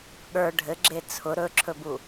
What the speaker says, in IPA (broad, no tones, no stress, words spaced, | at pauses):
ɠə˞ ɖʱɘɡ͡ǁe t͡sʰʊ ɾɵǁʰɵbu